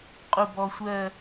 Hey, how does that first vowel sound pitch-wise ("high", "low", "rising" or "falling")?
low